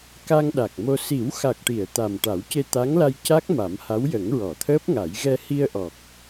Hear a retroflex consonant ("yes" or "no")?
yes